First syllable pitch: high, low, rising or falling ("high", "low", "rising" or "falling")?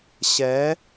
rising